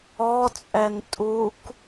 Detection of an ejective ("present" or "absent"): present